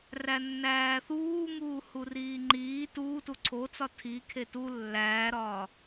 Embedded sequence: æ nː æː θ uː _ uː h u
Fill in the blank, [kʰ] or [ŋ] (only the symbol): ŋ